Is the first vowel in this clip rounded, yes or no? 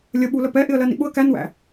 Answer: no